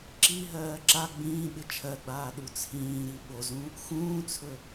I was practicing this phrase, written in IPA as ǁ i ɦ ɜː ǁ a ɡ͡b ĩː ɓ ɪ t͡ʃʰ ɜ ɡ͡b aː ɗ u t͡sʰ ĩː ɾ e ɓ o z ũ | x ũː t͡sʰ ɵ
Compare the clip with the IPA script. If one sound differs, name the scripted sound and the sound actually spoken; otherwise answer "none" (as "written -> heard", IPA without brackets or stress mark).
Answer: e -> i